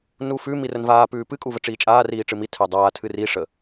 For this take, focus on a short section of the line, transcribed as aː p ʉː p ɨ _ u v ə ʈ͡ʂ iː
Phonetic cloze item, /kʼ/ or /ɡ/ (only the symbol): kʼ